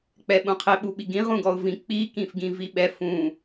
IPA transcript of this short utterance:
k͡p ɛ ɓ ũ qʰ ɪ ɓ u ɓ i ɡ ĩ ʁ ũ ɡ ɔ ʊ̯ v ĩ k͡p i k ĩ f ɡ ĩ v i ɓ ɛ f ũ

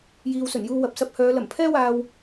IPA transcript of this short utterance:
j iː˨ w s ɵ˨˩ n j uː˧ w ɐ˨ p̚ s ɐ˧ p̚ h œː˨˧ l ɐ˨˩ m pʰ ɛː˥ w aː˧ w

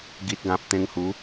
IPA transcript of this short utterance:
ɡ i˨ t̚ ɡ ã˨ p̚ t̪ ẽ˧ ŋ h u˨˦

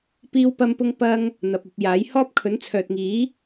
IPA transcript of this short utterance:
p iː˥ w p ɐ˥ m p ʊ˥ ŋ p ɐ˥ ŋ | n̪ ɐ˨ p̚ ɐ˧ p̚ j aː˨˥ j h ɔː˥ p̚ kʰ ɵ˨˥ n t͡sʰ œː˨ t̚ ŋ iː˨˥

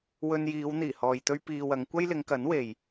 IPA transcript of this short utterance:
w ɵ˧ n j iː˨˧ w n̪ iː˨˩ h ɔː˨ j t̪ ɵ˥ ɥ p iː˧ w ɐ˨˧ ŋ kʷ ɐ˥ j l ɪ˨˧ ŋ k ɐ˨˥ n w e˨ j

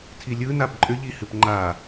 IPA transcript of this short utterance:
tʰ i lʲ ɯ n a b ǃʼ ʏ ʎ i h ɨ p ŋ͡ǃ a

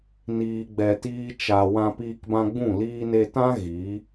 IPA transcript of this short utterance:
n iː˨ ɡ͡b ɛ˨ t iː˧ t͡ʃ a˨ w ã˧ p iː˧ k b ã˧ ɡ͡b ũ˦˨ l iː˧ n e˧ t ã˦ ɣ i˨˦

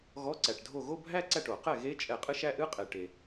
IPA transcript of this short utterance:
ɣ ɔ˧˥˧ ǀ æ˩ ʈ dʱ o˥˩ ɣ o˥˧ bʱ æ˥˧ ǀ æ˥˩ ʈ o˧˩˧ q ɛ˥˩ ɣ e˦˥ t͡ʃʼ ɛ˧˩˧ qʼ ɨ˦˥ ʃ æ˦˥ ʔ ɨ˧˥˧ qʼ e˩ ʈ e˩

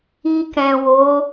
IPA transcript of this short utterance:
i˧ k ɛ̃˨ w o˨˦

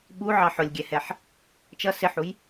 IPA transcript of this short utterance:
ɓ u ʕ ɑ ħ ʊ lʲ ɡʲ ɛ h ɛ ħ | t͡ʃ ʌ s ɪ ħ u j

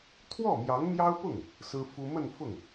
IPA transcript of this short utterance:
t̪ʰ w ɔ˥˩ m j ɑ˧˥ ŋ m j ɑ˥ ʊ̯ p ʊ˥˩ ŋ | s ɹ̩˥ f u˥ m ə˥˧ n f ʊ˥˩ ŋ

